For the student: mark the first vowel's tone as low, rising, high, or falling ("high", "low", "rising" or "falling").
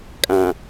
low